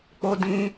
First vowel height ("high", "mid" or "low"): mid